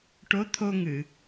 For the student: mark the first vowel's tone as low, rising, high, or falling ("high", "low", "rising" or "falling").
rising